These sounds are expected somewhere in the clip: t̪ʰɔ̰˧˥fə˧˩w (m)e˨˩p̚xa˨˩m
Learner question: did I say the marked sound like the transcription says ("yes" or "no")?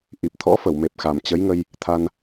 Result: yes